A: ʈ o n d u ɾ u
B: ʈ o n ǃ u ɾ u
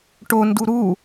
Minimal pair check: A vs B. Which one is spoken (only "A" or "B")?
A